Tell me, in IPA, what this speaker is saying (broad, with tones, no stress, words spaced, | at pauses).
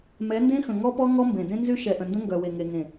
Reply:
mɛ˨˦ndẽ˦xə̃˨ ŋɔ˦pɔ˦ ŋɔ˦mbẽ˨ dẽ˦ nzy˦ʃɛ˨ʔə̃˨ndə̃˦ ŋɡœ˨we˨ŋe˨ŋẽ˨